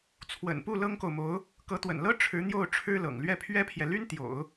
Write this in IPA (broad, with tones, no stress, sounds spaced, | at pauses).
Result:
t͡sʰ w ə̰˨˩ n p u˥˩ l ɤ˥ ŋ k o˨ ʊ̯ m o˧˥ ʊ̯ | k ɤ˧˥ t̪ w ə̰˨˩ n l ɤ˥ ʈ͡ʂʰ ɻ̩˧˥ n̪ j o˥˩ ʊ̯ ʈ͡ʂʰ ɻ̩˥ l ɤ̰˨˩ ŋ l ɥ ɛ˥˩ pʰ ɥ ɛ˥ pʰ j ɛ˨ l y˥ n t̪ j o̰˨˩˦ ʊ̯